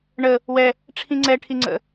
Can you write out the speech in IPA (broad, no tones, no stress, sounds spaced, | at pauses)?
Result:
ɳ ə | w ɛ | ʈ͡ʂʰ ĩ ŋ͡ǀ ɛ ʈʰ i ŋ͡ǀ ə̰